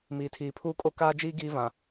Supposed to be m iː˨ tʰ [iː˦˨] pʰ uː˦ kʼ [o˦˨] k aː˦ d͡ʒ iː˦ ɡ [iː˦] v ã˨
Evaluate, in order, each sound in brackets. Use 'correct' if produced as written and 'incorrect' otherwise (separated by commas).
incorrect, incorrect, correct